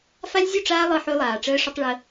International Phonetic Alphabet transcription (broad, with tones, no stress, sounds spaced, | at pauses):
f a˦ lʲ zʲ u˦˨ ʈ͡ʂ aː˦ lˠ ɤ˦ ħ ø˦ lˠ aː˨ ʈ͡ʂ əː˦ ʂ ʊ˦ tˤ ɭ ə˦